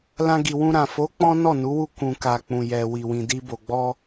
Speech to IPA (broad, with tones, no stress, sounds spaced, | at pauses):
l ã˧ ɡ i˨ w ũ˧ ɾ ã˨ f o˨˦ k͡p ɔ̃˦ n ɔ˦˨ n u˨˦ w u˦˨ k ũ˨ k a˨ k͡p ũ˨ j ɛ˨ w i˨ w ĩ˨ d i˧ b o˨ ɡ͡b ɔ˧